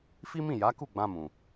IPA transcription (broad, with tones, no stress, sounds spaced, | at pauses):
f i˦ m ĩ˦˨ j a˨˦ k u˦˨ ɡ͡b ã˧ m ũ˨